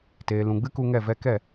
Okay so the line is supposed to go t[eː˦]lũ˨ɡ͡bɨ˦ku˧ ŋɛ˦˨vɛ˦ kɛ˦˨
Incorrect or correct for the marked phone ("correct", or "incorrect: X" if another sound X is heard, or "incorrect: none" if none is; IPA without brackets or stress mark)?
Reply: incorrect: eː˨